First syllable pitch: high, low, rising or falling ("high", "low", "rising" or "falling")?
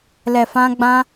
low